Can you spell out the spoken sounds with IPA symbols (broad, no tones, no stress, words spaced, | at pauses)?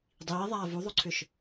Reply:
dˤiːðˤaː vuðˤoǀʰʏʃ